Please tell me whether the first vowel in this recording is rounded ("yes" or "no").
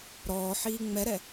yes